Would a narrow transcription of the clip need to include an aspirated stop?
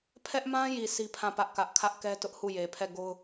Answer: yes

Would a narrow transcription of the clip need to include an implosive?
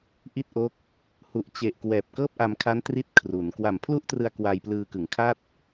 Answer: no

